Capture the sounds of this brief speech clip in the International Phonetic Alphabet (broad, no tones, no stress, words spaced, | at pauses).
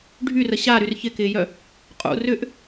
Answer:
ɖʱyrə ɕaɾyr çɪkɪːjœ | qʼṵ rʏʔ